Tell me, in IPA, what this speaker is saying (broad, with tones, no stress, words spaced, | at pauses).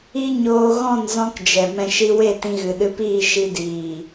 i˦ɲoː˧ ɣɔ̃˦˨nzɔ̃˧kd͡ʒɛ˨ mɛ̃˨ ʃi˧we˦˨tĩ˧ ɣɨ˨ɗɨ˧piː˦˨ ʃi˧diː˨